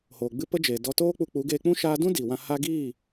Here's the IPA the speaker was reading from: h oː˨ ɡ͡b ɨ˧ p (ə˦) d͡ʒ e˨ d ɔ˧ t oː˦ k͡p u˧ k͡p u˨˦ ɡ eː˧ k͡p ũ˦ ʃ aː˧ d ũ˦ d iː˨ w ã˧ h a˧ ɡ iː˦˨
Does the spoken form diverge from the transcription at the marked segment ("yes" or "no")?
no